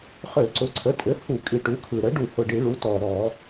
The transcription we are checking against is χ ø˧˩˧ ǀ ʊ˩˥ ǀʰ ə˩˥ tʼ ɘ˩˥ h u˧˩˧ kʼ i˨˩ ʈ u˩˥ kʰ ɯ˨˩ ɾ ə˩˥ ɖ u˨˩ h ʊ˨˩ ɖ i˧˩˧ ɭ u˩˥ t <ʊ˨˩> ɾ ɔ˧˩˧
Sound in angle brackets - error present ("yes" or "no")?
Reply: yes